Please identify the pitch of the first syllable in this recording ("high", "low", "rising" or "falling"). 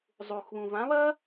low